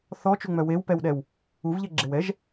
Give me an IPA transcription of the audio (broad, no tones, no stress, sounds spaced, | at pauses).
θ ɔ t͡ʃ u ŋ͡m œ w e w p ɛ w ɗ ɛ w | u v ʎ ɛ ɡ͡ǁ e w ɛ ʒ